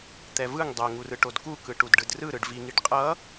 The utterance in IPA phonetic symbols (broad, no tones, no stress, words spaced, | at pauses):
t̪ɛvɯŋ dˤɛŋurɯ ʈodkukɯ ʈudɖɯdrɯɾɯɖ viŋiɖ qʼʌ